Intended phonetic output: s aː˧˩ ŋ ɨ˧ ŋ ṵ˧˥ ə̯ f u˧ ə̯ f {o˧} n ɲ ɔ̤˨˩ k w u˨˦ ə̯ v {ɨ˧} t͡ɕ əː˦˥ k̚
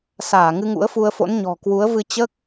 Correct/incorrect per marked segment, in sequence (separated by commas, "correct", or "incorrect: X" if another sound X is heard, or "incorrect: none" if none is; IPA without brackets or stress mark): incorrect: o̰˧˥, correct